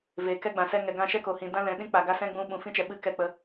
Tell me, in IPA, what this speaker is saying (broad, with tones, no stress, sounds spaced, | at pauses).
v eː˨ k ɛ˦ ɡ͡b ã˨ s ɛ˧ ŋ ɛ˨ ɡ ã˧ ʃ ɛ˦ k o˨ h ĩ˨ d ã˦ l ɛ̃˨ ɗ ĩ˦ k͡p a˨ ɡ a˦ s ɛ̃˦ ɡ͡b ũ˧ ɓ ũ˨ f ĩ˦ t͡ʃ ɛ˨ ɓ ɨ˧ k ɛ˦˨ k͡p ə˧